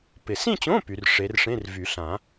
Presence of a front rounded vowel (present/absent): present